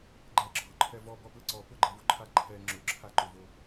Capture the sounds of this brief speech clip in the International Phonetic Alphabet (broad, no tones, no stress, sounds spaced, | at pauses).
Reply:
ɡ͡ǃ ɛ ǁʰ ʊ ǃʰ ɛ v ɔ b ɔ p l ɪ ǀ ɔ p ʊ ɡ͡ǃ ɛ v o ǃʰ a ǃʰ ɛ ŋ͡ǁ ʊ ǁʰ a ǃ ʊ v o